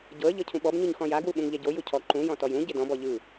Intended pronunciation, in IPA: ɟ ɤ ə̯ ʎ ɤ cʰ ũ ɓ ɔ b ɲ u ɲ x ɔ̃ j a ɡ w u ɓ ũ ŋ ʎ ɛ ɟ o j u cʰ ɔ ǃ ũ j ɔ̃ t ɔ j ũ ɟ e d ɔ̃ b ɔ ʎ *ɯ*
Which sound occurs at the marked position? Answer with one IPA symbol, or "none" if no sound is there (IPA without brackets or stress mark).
ɯ